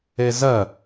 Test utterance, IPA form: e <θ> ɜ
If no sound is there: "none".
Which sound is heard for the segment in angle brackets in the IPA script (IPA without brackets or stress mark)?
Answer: z